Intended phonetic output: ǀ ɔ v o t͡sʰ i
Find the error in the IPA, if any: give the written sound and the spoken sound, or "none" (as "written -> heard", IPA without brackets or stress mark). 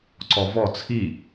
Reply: o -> ɔ